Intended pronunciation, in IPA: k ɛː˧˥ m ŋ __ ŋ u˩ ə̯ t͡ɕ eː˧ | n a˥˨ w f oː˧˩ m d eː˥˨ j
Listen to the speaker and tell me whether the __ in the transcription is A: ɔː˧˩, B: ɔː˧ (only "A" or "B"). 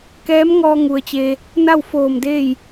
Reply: B